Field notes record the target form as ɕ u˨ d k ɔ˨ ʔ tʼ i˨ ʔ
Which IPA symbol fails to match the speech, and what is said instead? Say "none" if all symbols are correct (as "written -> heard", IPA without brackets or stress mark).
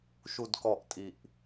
ɕ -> ʃ